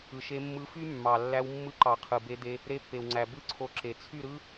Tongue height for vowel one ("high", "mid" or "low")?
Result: high